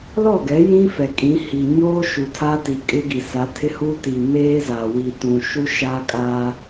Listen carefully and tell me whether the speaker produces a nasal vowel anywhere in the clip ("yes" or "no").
yes